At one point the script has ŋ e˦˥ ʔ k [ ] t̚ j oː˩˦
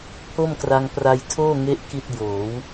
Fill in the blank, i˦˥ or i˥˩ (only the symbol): i˥˩